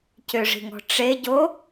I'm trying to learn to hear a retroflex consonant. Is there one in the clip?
yes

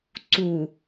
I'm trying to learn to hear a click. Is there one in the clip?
yes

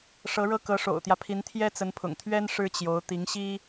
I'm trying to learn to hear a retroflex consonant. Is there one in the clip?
yes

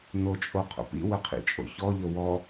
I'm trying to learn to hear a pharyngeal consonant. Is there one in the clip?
no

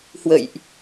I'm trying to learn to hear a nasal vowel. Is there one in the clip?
no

